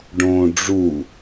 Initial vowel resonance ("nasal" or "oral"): nasal